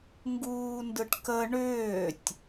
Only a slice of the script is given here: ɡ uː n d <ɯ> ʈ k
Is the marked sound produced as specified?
yes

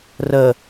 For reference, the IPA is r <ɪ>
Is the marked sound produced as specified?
no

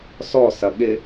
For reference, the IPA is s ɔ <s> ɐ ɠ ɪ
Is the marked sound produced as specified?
yes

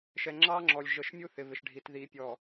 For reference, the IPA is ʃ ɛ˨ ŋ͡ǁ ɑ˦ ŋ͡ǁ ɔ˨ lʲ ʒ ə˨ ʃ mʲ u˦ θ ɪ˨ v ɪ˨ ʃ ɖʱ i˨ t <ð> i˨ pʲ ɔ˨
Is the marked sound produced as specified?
yes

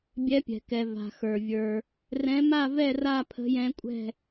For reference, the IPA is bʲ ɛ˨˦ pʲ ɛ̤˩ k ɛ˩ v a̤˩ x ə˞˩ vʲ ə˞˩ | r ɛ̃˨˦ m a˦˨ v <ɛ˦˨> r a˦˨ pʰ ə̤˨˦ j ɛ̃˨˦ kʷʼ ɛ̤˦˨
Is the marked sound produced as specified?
yes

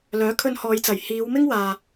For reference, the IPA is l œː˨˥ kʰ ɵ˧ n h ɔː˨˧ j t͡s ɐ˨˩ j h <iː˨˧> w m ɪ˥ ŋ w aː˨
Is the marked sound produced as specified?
yes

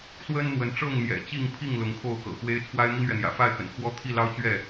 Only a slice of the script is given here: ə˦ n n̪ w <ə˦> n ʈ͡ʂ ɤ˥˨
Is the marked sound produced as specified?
no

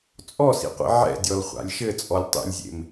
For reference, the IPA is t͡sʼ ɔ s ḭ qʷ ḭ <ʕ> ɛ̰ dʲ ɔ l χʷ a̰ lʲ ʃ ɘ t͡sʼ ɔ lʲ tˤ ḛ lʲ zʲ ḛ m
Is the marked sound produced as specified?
yes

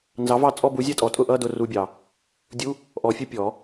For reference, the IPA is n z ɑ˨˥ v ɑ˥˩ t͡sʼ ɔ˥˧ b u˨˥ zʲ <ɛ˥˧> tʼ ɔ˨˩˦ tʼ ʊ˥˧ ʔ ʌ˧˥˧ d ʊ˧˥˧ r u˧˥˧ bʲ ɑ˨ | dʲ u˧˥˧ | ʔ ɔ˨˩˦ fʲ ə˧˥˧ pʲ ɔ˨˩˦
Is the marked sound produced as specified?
yes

